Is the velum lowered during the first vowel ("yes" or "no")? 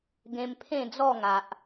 yes